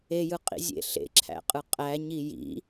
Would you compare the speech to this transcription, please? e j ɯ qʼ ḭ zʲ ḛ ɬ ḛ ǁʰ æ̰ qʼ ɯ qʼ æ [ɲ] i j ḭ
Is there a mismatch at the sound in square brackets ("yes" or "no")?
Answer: no